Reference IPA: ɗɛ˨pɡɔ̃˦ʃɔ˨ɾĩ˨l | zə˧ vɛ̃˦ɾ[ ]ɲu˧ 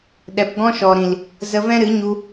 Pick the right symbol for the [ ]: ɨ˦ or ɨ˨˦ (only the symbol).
ɨ˨˦